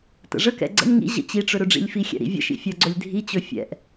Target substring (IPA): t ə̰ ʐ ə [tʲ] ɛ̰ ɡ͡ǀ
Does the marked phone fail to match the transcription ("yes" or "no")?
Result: yes